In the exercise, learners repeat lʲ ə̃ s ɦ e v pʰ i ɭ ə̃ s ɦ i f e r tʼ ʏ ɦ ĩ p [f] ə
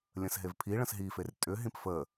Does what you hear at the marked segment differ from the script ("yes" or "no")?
no